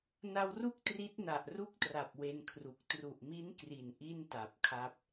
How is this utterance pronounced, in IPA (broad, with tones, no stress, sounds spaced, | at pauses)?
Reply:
n a˧ w r u˥˩ k̚ t r i˦˥ t̚ n a˨˩ ʔ r u˦˥ k̚ t r a˨˩ p̚ w e˧ n kʰ r u˨˩ k̚ t r u˨˩ ʔ m i˦˥ n k r i˨˩ n ʔ i˥˩ n t a˨˩ p̚ kʰ a˦˥ p̚